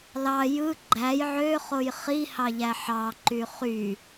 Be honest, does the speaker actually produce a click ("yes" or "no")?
yes